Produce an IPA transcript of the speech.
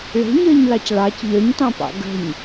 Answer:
ɭ e̤ ɲ əː ɲ l ɑ c ɭ ɑ c ʎ œ ɲ t ɑ̃ p ɑ̰ ɡ ə̤ ɲ

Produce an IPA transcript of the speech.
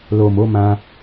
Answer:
l o˨ m o˨˦ m ã˦

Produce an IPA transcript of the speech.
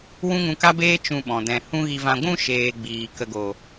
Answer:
w ũ˦ ŋ ũ˧ k a˦ b eː˦ t͡ʃ ũ˧ ɓ ɔ̃˨ d ɛ̃˨ h ũ˦ ɣ i˧ v ã˧ ɡʷ ũ˧ ʃ eː˨ ɡ͡b iː˨ k ə˧ ɡ o˨

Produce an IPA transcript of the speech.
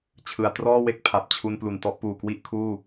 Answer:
t͡ɕʰ ɯ˨˩ a̯ t r ɔː˥˩ w e˥˩ k̚ pʰ a˨˩ p̚ t͡ɕʰ u˧ n p l u˨˩ n t ɔ˦˥ ʔ p uː˨˩ k w i˥˩ ʔ kʰ uː˥˩

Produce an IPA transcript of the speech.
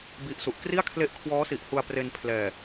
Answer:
b i˦˥ ʔ s u˨˩ ʔ k r i˥˩ a̯ kʰ l e˦˥ ʔ kʰ w ɔː˦˥ s i˨˩ ʔ h u˧ a̯ p r e˧ n pʰ l ɛː˨˩

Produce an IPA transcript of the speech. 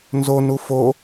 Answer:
n z o n u f o

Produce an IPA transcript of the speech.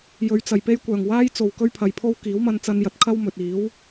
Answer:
j ɵ˨˧ ɥ t͡s ɐ˨˩ j p e˥ j kʷ œː˨˩ ŋ w aː˥ j t͡s o˨ w k ɵ˥ ɥ pʰ ɐ˨ j pʰ o˥ w k iː˨˥ w m ɐ˧ n t͡s ɐ˧ n j ɐ˨ t̚ kʰ ɐ˥ w m ɵ˨ t̚ iː˨˥ w

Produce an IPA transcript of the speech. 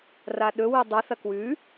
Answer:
r a ɗ ɵ w ɨ dˤ ɨ θ ɐ k w ʉ

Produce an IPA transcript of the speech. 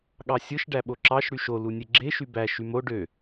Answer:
ɠ ɑ sʲ ɯ ʃ ɖ æ ɓ o ǁ ɑ ʃ ɽ y ʃ o l u nʲ e ɡ͡ǁ e ʃ y b æ ʃ y m o ɖ ø

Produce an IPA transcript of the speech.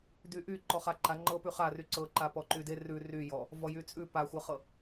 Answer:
d y ʔ y ǃ ɔ χ a ǃ a ŋ͡ǃ ɤ p ʉ χ a r y ǀ ɤ ǃ a p ɔ ǃ y d e r ʉ r y j ɔ | v ɔ j y t͡sʼ ʉ p a xʷ ɤ χ ɤ

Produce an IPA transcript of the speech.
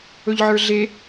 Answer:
ɵ ʎ ʕ ə˞ ɮ e

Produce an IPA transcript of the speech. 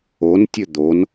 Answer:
o n tʲ ɵ d̪ o n

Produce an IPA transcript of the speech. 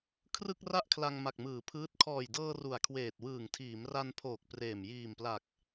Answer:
kʰ r ɯ˥˩ k̚ r a˥˩ ʔ kʰ l a˧ ŋ m a˨˩ k̚ m ɯː˩˦ pʰ ɯː˦˥ t̚ kʰ ɔː˨˩ j d ɤː˧ r u˨˩ a̯ kʰ w eː˨˩ t̚ w ɯː˨˩ ŋ tʰ iː˩˦ m r a˧ n pʰ oː˨˩ k̚ p r eː˨˩ m j iː˨˩ m p l a˨˩ k̚

